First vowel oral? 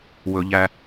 yes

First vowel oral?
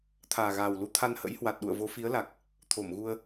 yes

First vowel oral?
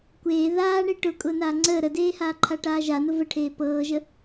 yes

